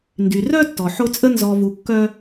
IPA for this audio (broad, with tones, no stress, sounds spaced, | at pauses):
n d y˩ r œ˦ tː ɔ˩ ħ o˦ t͡sʼ ə˥ n z ɔ˨ v u˨ kː œ˦